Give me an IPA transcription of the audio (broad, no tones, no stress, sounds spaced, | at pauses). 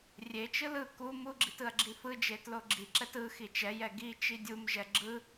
rʲ e t͡ʃ ɯ l ɯ k u m u ɡ͡ǁ i t ɯ ɐ̯ ɡ͡ǁ i f ɯ d͡ʒ e t l o ɡ͡ǁ i ǁ ɛ t ɯ x i t͡ʃ ɛ j ɛ ɡ i t͡ʃ i dʲ u m ʒ ɛ ɡ͡ǁ ɯ